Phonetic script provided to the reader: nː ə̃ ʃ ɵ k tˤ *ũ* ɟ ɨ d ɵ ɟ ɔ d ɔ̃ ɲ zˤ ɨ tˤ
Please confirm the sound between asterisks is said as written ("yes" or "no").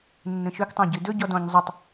no